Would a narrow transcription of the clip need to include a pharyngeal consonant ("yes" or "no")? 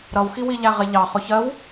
no